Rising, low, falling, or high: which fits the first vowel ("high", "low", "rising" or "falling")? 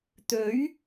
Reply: rising